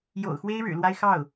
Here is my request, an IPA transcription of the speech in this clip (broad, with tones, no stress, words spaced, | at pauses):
jo̰˨˩ʊ̯xwe˥ɪ̯ ɻɻ̩˨˩lwa˥ɪ̯ xɑ˥˩ʊ̯